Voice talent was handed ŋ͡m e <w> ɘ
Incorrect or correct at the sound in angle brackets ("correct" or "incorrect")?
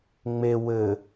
correct